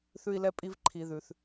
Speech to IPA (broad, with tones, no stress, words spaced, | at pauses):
θʉ˦i̯lɛ˦pʼi˦v ǃʰi˨ðʉ˩θ